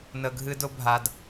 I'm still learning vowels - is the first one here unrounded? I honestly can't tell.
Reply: yes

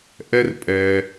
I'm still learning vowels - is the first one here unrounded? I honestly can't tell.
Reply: yes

